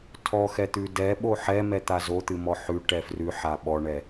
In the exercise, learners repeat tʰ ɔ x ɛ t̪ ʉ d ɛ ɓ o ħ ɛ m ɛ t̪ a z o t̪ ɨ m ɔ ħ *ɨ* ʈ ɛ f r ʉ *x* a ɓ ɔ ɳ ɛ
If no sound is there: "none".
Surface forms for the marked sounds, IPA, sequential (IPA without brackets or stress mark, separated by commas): ʉ, ħ